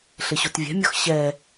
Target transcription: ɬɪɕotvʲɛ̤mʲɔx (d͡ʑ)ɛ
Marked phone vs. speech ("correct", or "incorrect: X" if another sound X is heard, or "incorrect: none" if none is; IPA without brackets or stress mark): incorrect: ɕ